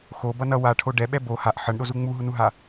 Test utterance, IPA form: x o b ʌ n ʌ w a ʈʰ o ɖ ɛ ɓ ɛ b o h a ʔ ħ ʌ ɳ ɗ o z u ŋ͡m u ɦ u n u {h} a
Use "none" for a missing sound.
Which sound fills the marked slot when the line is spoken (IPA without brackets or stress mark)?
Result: ɦ